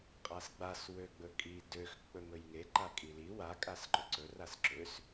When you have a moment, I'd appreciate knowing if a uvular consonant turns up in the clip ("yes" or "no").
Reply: yes